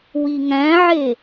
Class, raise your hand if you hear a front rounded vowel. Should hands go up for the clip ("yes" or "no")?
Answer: no